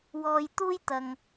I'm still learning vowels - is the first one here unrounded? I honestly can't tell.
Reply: no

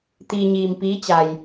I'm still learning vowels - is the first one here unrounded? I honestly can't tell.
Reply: yes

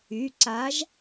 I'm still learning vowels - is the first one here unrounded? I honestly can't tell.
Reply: no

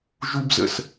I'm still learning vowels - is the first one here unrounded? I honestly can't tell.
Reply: no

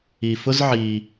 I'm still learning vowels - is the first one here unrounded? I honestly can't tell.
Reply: yes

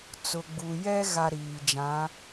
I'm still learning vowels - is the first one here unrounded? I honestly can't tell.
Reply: no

